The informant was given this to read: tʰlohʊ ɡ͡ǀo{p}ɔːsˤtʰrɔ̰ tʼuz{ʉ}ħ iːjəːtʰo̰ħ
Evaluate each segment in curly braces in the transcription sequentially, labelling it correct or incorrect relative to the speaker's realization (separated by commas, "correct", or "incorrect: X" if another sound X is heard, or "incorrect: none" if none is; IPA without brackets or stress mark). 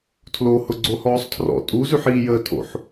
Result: incorrect: h, correct